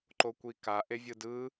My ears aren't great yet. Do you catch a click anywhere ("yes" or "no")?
yes